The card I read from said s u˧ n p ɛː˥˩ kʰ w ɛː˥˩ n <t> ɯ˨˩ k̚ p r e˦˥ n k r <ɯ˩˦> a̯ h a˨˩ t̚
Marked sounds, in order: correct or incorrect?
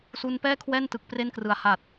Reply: correct, correct

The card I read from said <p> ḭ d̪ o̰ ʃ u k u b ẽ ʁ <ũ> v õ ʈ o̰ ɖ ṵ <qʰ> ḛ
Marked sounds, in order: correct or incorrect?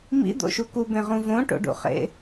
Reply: incorrect: m, correct, incorrect: χ

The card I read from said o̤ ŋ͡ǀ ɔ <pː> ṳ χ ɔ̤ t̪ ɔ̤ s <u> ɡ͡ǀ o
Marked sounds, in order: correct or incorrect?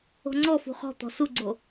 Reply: incorrect: f, correct

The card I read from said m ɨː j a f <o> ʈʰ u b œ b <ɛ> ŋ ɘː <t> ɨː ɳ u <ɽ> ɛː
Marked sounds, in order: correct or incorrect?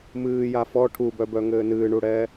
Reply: incorrect: ɔ, incorrect: œ, incorrect: n, correct

